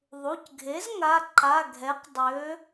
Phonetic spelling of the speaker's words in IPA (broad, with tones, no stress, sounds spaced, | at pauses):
ðˤ u˩˧˩ c ɡʱ e˩˥ z ŋ a˩˧˩ ǃ a˩˧˩ ɡʱ ɛ˩˥ q dˤ ø˩˧